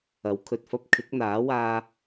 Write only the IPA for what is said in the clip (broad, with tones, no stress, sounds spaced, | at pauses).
ɐ˨˥ w kʰ ɵ˨ t̚ f ɐ˥ p̚ kʰ ɪ˨˥ k̚ n̪ aː˨˥ w aː˧